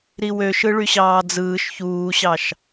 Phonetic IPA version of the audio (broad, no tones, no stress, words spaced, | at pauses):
ɾiwøʃɯ ɭyɕɑːd͡zɯːʃ çuːɕɑʃ